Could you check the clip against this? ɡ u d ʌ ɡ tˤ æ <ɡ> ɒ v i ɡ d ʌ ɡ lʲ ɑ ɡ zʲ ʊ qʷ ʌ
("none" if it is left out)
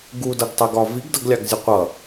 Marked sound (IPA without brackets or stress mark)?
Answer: ɡ